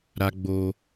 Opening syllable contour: high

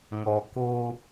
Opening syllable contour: low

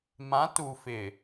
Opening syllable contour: rising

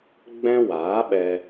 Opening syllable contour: high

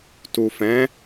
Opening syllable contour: low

